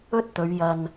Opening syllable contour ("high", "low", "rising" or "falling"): high